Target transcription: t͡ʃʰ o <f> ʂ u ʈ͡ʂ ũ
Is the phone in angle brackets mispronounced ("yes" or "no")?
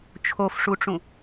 no